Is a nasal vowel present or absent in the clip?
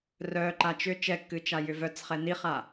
absent